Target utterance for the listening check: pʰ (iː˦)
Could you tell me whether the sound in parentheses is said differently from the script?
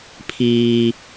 no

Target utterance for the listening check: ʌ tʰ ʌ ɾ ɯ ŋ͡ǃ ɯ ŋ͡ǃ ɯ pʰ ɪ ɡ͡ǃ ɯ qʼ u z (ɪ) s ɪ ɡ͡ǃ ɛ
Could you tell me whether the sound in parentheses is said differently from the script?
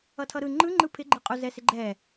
yes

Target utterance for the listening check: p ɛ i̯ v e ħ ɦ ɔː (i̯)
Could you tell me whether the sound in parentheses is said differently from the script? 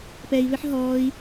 no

